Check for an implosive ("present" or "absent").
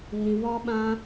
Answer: present